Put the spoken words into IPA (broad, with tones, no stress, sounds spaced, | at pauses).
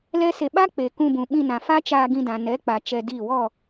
l ɛ˦ s e˧ ɓ a˦ k͡p e˨ k ũ˧ b ũ˨ ɓ ĩ˧ n ã˨ f a˦ t͡ʃ aː˧ ɡ ĩ˧ d ã˨ n ɛ˨˦ k͡p a˨ t͡ʃ ɛ˧ d iː˦˨ w ɔ˦˨